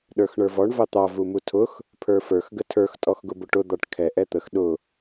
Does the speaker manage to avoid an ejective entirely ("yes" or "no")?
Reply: no